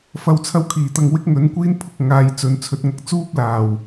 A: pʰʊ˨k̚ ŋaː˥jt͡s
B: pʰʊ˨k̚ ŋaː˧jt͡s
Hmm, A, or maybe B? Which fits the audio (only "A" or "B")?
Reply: B